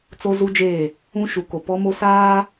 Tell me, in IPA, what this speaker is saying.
t͡s o˦ z u˦ d͡ʒ eː˦˨ | ũ˦ ʃ u˨˦ k o˨ p ɔ˦ m o˦ s aː˦

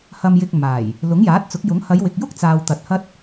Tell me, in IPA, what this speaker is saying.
h ɐ˧ m j ɪ˧ k̚ m aː˨˩ j | l ʊ˨˥ ŋ j aː˨˥ t̚ t͡s ʊ˨˥ k̚ j ʊ˨˥ ŋ h ɐ˨˧ j w ɪ˨ k̚ j ʊ˥ k̚ t͡s aː˨ w t̪ ɐ˨ t̚ h ɐ˥ t̚

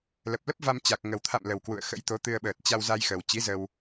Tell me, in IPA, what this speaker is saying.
l ə˨˩ p̚ l ə˦˥ p̚ v a˧ m t͡ɕ a˨˩ k̚ ŋ ə˨˩ w t̪ʰ a̰˧˨ m l ə˨˩ w k w ṵ˧˨ ə̯ x ə̰˧˥ j t̪ o˨˦ t̪ ɨ˧ ə̯ ɓ əː˨˩ t̚ t͡ɕ a˧ w z a˧ j x ə˨˩ w t͡ɕ i˨˦ z ə˧ w

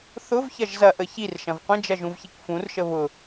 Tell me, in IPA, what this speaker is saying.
θ ʊ v ç ɐ ʒ z ɐ ʔ ə ç i r ʃ ɐ̃ v qʷ ə̃ d͡ʒ ɐ ʒ ũ v ç i k f ũ r ʃ ə β ʊ

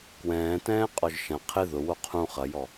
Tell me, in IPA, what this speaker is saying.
k w ɛ̃ː t ɛ̃ː qʼ ɔ ʒ ʃ ɐ̃ qʰ ɪ ð ʊ w o qʰ ũ χ ɐ j ɔ

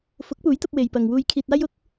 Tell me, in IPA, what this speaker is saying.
f ʊ˨˥ k̚ p uː˨˥ j t̪ ɐ˧ p̚ w e˨ j p ɐ˨ ŋ w uː˧ j kʰ iː˧ t̚ aː˥ j ʊ˥ k̚

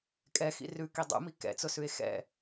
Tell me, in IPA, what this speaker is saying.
kʼ ɛ x ḭ r ʉ k i dˤ ṵ m i k ɛ̰ t͡s ʊ s ʉ e̯ x ɛ̰

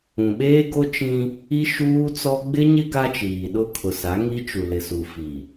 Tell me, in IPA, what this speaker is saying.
ũ˨ ɓ eː˦ ɡ o˦ t͡ʃ ĩ˦ | i˦ ʃ uː˦ t͡s ɔ˦ ɡ͡b ɪ˦ ɲ ɪ˦ ɡ a˦ t͡ʃ iː˨ ɗ ʊ˦ kʰ ʊ˨ s a˨˦ ŋ i˦ t͡ʃ u˨ l ɪ˨ s u˨ f i˨

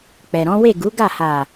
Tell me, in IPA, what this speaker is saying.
k͡p ɛ˨ ɾ ɔ̃˨˦ w e˦˨ ɡ u˨˦ ɡ a˦˨ h a˨

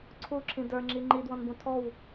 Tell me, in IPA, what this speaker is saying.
ǀʰ u ǁʰ ĩ d ə˞ ŋ͡ǁ i ŋ͡ǃ i d w ɔ̃ n b ũ tʰ ɔ w

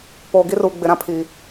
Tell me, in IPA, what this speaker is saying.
p oː˨ ɡ i˦ r u˨ ɡ͡b ɪ˨ ɾ ã˦ pʰ iː˨

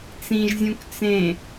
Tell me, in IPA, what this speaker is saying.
t͡s ĩ ʒ zʲ ũ k t͡s ẽ

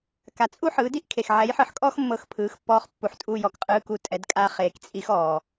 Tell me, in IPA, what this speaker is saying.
k a˨ t͡sʼ u˥ ħ ɯː˩˥ d i˥ ʔ kʰ e˨ x ʕ ɛ˩˥ j ħ ɯ˩˥ ħ kʼ ɔː˥ x mː ɤ˦˨ x pʰ ɯː˩˥ x pː ɔː˧˥ χ pː u˨ ħ tʼ u˦˨ j ɔ˨ k qʼ ɯː˧˥ k u˦˨ tʼ ɛ˩˥ d kʼ a˧˥ χ eː˨ k t͡sʼ i˧˥ x ɔː˨

